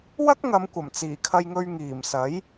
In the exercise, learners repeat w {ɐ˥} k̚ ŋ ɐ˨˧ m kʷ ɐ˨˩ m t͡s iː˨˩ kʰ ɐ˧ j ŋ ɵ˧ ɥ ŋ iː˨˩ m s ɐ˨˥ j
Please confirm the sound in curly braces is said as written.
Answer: yes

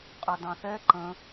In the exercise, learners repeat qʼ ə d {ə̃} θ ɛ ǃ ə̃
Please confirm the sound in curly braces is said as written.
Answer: no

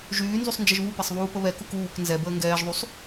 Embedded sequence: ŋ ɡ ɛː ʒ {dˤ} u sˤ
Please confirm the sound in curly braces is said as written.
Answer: no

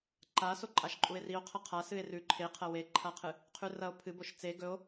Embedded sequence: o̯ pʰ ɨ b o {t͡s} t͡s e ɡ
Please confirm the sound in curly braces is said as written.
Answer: no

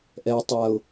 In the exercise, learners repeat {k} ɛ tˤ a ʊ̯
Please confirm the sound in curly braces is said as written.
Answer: no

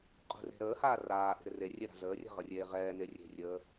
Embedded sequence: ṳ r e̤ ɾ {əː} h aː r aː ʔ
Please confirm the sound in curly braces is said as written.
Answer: yes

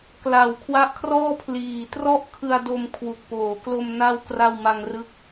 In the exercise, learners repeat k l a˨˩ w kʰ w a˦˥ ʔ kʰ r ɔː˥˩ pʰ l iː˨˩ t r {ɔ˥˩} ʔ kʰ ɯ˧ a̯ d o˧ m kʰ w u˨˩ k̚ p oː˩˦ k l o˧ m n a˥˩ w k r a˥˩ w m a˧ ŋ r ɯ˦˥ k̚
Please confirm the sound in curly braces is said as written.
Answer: yes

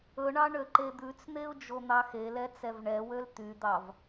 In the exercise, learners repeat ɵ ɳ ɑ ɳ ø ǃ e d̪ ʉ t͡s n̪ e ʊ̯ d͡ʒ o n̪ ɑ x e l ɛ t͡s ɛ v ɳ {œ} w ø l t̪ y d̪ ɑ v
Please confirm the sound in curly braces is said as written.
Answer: no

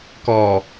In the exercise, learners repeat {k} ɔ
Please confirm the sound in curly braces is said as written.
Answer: yes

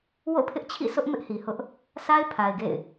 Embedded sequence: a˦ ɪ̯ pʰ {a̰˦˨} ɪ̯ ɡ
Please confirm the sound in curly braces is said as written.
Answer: no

